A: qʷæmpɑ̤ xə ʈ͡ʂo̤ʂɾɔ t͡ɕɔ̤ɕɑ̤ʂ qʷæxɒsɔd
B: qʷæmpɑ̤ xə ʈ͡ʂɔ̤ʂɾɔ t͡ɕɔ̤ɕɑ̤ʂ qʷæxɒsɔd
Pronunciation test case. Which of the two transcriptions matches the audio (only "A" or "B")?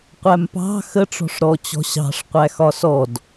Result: B